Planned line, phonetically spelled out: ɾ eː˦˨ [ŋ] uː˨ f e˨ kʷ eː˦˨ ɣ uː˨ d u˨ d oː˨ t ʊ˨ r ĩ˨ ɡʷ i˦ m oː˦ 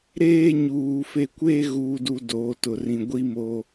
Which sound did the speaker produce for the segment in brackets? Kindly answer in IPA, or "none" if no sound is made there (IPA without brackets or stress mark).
ɲ